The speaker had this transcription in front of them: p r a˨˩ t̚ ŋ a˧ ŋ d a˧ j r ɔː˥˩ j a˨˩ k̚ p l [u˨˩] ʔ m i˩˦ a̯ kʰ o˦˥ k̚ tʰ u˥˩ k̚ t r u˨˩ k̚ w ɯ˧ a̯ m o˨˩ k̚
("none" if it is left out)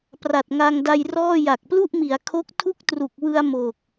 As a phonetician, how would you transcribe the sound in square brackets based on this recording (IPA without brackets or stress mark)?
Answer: u˥˩